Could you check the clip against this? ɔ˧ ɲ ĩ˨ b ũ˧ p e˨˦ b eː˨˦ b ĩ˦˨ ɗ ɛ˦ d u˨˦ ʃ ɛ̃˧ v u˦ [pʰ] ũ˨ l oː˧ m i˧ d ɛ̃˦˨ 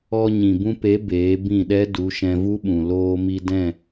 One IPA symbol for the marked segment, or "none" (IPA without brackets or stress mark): ɓ